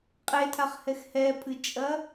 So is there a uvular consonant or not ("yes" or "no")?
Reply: yes